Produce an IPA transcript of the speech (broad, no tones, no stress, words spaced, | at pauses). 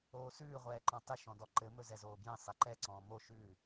oːsʉː ʁʷɛːǃɔ̃tˤɪ ʃɔ̃dɔǃɘ mɵzɛzoːbjɛ̃ sˤɛǃɛ ǀɔ̃ːmo ʃʉː